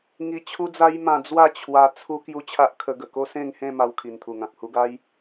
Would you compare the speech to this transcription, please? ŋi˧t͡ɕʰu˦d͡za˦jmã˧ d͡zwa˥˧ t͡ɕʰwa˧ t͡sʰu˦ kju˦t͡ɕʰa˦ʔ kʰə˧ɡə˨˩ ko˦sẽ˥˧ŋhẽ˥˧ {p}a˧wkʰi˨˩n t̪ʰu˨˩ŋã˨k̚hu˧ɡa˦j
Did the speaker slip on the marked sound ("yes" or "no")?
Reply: yes